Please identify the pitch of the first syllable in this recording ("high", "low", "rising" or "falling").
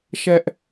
high